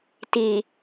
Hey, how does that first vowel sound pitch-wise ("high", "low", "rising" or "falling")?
low